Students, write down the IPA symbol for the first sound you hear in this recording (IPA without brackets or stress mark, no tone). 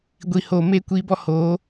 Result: ɡʷ